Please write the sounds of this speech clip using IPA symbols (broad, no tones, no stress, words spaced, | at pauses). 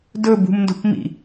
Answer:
dɵ bṳmndo̤pmḭ